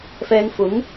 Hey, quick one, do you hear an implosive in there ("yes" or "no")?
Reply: no